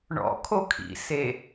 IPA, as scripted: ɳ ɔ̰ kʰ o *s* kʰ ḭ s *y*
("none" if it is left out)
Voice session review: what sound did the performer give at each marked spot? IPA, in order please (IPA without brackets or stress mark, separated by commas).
none, e